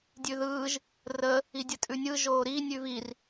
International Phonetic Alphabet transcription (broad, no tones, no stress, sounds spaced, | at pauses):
dʲ ʉ ð ɯː ʒ | r ə | i dʲ ə tʼ ʉ nʲ ɯ ʒ oː ɾ i nʲ ʉ v i r